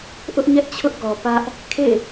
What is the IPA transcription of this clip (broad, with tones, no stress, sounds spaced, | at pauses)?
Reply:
ʔ ʊ˦ ʔ ɲ ɛ˦ ʔ t͡ɕʰ ʊ˦ ʔ ɡ ɔ˨ p ä˦ ʔ | kʰ ḛ˦˨